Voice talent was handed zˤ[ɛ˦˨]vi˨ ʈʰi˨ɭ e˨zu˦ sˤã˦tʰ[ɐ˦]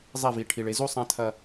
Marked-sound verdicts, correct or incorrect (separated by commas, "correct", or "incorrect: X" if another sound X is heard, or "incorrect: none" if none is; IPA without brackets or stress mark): correct, correct